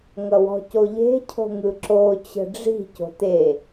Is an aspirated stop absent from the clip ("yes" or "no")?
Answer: no